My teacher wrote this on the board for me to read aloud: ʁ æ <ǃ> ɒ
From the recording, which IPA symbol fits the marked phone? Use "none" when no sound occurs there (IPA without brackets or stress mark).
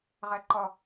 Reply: ǃ